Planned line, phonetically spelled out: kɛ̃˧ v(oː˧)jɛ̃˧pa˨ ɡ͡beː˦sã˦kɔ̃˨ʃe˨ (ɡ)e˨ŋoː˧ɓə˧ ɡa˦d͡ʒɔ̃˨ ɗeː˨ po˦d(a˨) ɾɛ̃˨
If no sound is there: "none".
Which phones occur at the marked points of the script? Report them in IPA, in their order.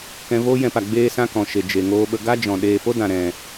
oː˦, d͡ʒ, ã˨

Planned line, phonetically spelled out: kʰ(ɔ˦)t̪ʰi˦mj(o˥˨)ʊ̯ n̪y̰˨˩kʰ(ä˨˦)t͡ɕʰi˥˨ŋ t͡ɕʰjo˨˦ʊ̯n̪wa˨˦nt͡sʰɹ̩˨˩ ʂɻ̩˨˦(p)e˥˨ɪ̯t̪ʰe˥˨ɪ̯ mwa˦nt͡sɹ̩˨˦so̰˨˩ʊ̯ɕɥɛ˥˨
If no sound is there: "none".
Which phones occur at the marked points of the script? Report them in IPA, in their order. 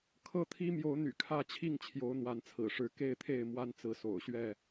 ɤ˦, o˨˦, ä˦, k

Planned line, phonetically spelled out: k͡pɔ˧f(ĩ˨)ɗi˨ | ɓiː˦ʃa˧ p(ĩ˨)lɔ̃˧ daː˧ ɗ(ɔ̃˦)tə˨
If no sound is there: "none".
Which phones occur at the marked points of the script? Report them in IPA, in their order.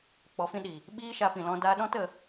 ĩ˦, ĩ˨, ɔ̃˦

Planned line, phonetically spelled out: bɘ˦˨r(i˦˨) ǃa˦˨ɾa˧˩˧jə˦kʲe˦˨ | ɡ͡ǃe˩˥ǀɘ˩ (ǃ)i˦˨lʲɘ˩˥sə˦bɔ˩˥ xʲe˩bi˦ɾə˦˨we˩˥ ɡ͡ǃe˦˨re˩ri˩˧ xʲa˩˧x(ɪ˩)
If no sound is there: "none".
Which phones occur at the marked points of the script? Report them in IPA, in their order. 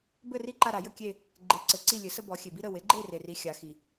i˦˨, ǀ, i˩

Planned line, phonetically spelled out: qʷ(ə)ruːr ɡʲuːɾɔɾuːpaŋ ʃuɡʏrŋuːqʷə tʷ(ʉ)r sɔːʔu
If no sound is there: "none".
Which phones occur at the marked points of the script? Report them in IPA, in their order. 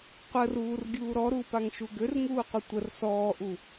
ə, ə

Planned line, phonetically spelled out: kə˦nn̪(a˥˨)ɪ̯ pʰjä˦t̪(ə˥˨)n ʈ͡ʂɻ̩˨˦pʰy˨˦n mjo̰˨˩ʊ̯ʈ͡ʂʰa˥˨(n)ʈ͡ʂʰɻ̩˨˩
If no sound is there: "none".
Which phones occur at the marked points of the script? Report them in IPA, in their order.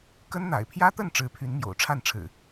a̰˨˩, ə˥˨, n

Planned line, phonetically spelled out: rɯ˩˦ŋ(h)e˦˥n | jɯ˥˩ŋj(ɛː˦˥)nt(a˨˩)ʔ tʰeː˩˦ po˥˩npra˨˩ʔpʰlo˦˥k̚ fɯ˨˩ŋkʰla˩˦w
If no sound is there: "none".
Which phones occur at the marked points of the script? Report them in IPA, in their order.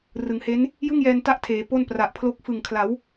h, ɛː˧, a˦˥

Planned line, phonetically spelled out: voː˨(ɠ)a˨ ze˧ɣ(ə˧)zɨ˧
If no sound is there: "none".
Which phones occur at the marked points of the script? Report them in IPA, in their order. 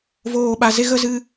ɓ, ə˧

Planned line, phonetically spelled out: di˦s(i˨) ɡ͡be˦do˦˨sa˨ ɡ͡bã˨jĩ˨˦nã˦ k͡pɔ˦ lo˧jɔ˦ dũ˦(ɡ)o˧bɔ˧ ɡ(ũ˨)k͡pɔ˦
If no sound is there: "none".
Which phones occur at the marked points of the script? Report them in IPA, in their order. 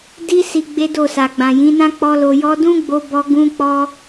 i˧, ɡ͡b, ũ˦

